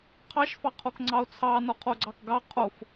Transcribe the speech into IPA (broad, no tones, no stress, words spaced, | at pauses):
qʰɑʃfɑqʰok ŋ͡ǀɑo̯t͡sʰɑ nɔqʰoɡ͡ǀɑkɡɑ qʰof